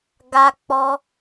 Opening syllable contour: high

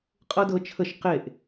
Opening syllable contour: high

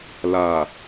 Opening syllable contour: low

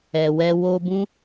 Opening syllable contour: low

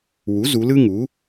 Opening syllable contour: rising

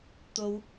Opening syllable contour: high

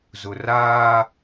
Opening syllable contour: low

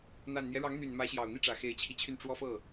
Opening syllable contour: low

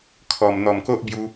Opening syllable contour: low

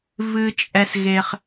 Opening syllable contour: low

